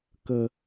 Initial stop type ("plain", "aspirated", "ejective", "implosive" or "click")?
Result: plain